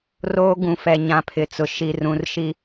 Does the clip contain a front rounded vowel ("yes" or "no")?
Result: no